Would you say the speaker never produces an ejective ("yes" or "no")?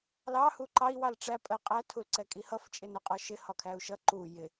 no